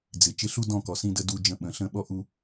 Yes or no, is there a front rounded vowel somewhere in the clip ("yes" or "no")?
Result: no